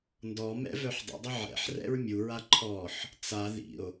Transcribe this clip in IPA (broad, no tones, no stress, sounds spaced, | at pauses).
n d ɔ m ɛ̰ v œ ħ dˤ ə̰ dˤ ə ʕ ɛ̰ ħ r ɛ̰ ɹ mʲ u ɹ a ǃʰ ɔ ħ | t͡s a ð ḭ o̯